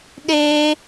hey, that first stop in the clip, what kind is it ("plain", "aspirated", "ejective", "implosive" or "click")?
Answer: implosive